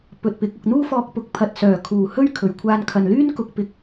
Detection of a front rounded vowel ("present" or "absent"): present